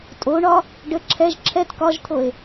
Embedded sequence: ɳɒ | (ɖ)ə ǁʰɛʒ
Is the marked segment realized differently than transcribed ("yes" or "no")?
no